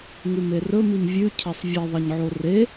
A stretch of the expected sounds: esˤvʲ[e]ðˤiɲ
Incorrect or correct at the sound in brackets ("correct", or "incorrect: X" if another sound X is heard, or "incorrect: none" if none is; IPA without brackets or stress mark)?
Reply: correct